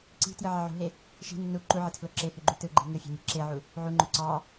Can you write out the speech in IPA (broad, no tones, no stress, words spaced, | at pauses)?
ǀi̤ tjɯʕɑʕṳɦe | ʃi̤ nːu ǃuʕe tʰloǁehy ɡ͡ǃytɯɡ͡ǃi̤ ŋɯfʲe̤ mʲe̤ǁeʕu | ʕuŋ͡ǃø ǀɑ